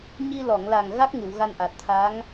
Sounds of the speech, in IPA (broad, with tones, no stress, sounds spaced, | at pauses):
ɲ i˧ l ɔ˨˩˨ ŋ l a˨˩ ŋ ɣ a˦˥ k̚ ŋ ɨ˨˩˨ w ɣ a˧ n ʔ a˨˩ t̚ t̪ʰ a˧˥ ŋ